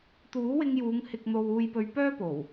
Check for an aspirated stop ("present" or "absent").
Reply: absent